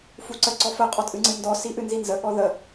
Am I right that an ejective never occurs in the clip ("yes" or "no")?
no